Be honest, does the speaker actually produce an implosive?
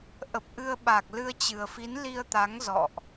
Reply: yes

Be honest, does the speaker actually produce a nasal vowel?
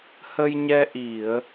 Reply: no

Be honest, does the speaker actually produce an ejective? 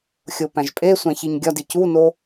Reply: yes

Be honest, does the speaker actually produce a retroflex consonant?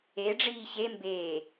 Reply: yes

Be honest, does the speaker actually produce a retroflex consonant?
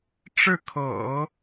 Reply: yes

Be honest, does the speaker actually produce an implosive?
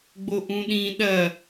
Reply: yes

